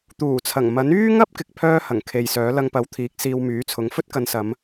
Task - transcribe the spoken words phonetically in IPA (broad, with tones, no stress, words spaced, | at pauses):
t̪uː˨˩t͡sʰɐ˨˩ŋ mɐ˨˥n yː˥ŋɐ˥p̚ kɪ˨k̚pʰœː˥hɐ˨˩ŋ kʰe˧jsœː˨˥ lɐ˧ŋpɐ˨˥w t̪ʰiː˨˥k̚siː˧wmyː˨˥t͡sʰʊ˨˥ŋ fɵ˥t̚kɐ˨˧nsɐ˨˧m